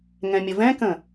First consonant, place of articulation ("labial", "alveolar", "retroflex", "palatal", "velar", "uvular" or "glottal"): velar